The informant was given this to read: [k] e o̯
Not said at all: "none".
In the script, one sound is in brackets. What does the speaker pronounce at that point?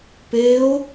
p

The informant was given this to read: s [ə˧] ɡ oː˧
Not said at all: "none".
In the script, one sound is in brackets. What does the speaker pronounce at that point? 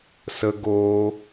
ə˧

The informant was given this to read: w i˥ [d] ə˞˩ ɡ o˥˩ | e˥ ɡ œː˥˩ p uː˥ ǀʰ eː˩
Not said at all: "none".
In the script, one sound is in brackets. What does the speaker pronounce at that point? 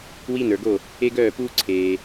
n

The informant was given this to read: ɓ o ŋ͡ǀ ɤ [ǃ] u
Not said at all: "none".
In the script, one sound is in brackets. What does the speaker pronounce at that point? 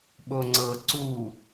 ǀ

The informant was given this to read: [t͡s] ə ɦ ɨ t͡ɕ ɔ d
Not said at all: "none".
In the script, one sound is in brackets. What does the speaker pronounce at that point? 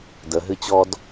d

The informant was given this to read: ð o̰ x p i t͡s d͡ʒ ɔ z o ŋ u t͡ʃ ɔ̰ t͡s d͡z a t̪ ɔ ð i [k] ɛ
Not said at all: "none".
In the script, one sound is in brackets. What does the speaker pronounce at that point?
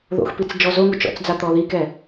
k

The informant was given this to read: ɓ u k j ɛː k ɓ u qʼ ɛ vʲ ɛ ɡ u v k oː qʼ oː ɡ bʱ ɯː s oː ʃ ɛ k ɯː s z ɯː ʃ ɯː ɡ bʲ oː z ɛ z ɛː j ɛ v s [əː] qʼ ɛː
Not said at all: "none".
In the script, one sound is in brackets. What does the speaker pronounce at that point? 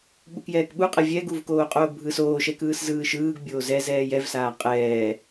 aː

